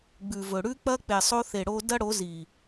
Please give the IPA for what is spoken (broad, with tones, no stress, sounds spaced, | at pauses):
ɡ͡b ʉ˨ v ɵ˨ ɽ ʉ˧ k͡p ɐ˧ k͡p e˨ sˤ o˧ θ e˨ ɽ o˧ d ɐ˦ ɽ o˨˦ z i˨